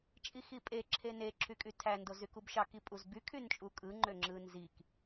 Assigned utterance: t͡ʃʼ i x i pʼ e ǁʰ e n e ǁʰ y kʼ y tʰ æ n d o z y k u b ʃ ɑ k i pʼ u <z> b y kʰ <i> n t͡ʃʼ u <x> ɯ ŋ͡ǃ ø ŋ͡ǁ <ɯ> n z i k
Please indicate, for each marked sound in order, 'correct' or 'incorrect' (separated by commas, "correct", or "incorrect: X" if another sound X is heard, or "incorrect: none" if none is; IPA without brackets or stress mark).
correct, incorrect: y, incorrect: kʼ, correct